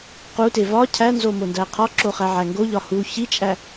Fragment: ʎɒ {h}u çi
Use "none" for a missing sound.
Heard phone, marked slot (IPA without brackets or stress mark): h